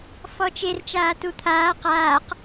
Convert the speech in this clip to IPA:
fɔt͡ʃer t͡ʃaːtut̪ʰaː qaːq

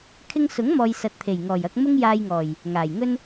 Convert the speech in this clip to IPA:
kʰɪ˧ŋsʊ˨˥ŋ mɔː˨j sɐ˨˥t̚t̪ʰe˨˩jŋɔː˨˩jɐ˧k̚ mʊ˥ŋjaː˧jŋɔː˨˩j | ŋaː˨˩jŋɵ˥n

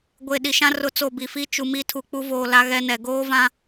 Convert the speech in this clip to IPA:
ɡʷe˨ ɗi˨ʃã˦rʊ˦˨ t͡so˦˨bi˨ fi˦t͡ʃu˨ mi˦ tʰu˨k͡pu˦voː˨ la˦ɣɛ˦nɛ˨ ɡoː˦vã˦

